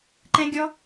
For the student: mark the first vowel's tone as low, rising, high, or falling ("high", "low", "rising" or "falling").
high